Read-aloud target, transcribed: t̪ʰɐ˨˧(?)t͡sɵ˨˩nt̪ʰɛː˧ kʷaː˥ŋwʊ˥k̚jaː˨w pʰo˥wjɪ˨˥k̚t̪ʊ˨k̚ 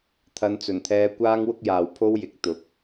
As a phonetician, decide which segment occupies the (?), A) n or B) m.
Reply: A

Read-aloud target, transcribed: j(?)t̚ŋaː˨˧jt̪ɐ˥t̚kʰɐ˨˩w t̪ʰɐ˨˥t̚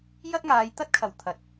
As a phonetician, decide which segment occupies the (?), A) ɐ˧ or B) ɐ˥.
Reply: B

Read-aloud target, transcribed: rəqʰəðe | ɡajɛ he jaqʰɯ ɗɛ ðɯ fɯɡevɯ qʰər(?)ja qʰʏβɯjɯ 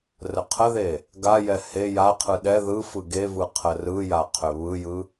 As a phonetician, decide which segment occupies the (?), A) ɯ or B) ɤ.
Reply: A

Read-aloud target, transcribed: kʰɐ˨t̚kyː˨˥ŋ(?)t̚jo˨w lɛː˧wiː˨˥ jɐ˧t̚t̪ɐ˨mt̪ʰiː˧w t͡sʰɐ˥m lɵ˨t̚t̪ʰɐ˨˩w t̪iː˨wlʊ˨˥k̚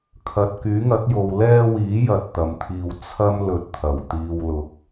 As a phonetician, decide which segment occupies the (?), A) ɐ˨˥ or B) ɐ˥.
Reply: A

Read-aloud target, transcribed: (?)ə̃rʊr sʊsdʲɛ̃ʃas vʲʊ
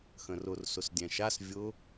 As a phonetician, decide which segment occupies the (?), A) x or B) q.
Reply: A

